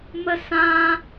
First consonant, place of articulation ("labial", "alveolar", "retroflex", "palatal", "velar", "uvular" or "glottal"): labial